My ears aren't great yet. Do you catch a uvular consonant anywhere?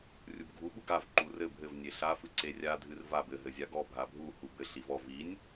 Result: no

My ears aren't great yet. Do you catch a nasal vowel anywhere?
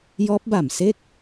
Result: no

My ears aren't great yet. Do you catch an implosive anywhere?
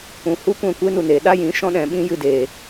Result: yes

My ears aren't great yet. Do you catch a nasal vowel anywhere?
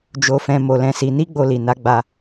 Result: yes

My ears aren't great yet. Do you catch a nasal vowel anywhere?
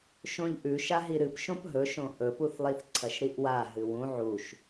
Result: yes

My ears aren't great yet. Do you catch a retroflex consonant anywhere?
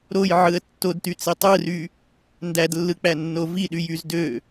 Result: no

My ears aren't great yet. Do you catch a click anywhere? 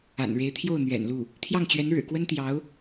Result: no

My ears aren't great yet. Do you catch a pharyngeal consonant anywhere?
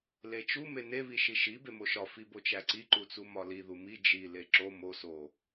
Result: no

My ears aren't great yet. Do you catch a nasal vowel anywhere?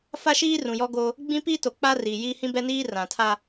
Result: yes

